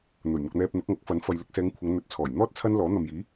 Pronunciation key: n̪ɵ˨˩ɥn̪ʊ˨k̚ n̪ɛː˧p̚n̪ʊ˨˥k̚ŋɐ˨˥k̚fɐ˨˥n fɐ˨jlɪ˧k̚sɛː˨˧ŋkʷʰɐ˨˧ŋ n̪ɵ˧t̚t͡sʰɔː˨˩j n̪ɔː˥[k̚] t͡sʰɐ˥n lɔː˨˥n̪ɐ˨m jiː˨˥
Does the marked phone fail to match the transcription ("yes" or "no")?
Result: yes